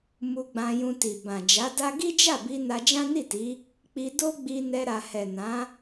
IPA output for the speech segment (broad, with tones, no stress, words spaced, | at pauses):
mu˧ɡ͡bã˧ jũ˧ti˨ bã˨ d͡ʒa˨˦da˦ ɡi˦d͡ʒa˦˨bi˧ na˧d͡ʒã˦ni˦˨ti˨˦ | k͡pi˧do˦ɡ͡bi˧ nɛ˧ɾa˨hɛ˨ nã˨˦